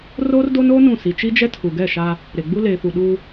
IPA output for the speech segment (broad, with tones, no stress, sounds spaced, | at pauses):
r oː˦ r d o˦ n oː˦ n ũ˦˨ s i˨ t͡ʃ i˦ d͡ʒ ɛ˦ tʰ u˨ ɡ ɛ˦˨ ʃ a˦ | ɾ e˨ ɡ͡b u˦ l eː˨ f u˨ ɗ uː˦